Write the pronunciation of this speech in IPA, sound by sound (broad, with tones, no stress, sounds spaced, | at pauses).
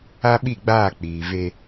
a˦ ɓ i˦˨ ɡ͡b aː˦˨ k͡p iː˨ v e˦